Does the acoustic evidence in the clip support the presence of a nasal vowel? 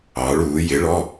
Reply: no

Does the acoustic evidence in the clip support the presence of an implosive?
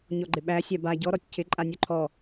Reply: yes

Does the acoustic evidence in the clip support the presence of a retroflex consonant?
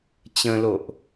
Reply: no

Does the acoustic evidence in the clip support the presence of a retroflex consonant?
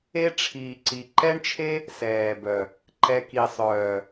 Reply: yes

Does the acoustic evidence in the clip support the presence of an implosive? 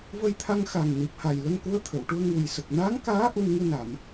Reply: no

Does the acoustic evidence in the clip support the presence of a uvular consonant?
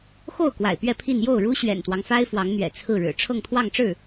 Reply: no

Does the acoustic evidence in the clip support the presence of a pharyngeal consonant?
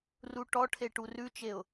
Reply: no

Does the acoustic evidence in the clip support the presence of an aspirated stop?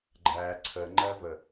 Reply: yes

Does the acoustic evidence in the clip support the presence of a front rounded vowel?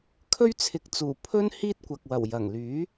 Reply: yes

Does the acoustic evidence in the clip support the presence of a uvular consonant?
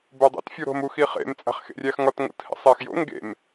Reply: yes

